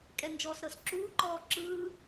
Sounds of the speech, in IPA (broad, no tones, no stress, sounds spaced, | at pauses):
kʼ ɛ n d͡ʒ ɔː s ɾ ɤ s ǁ uː ǃ ɔː ǁ ɯː